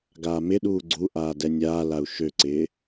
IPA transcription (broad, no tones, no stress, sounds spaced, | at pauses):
ɡ aː m ɪ ɗ uː ɡ͡ǀ u ʔ aː d ɛ nʲ aː l a u̯ ʃ ø ǀ ɪː